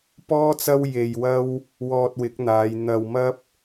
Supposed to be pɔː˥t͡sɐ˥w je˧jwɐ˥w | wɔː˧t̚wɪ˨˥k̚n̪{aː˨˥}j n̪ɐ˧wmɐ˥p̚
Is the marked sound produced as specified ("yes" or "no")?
no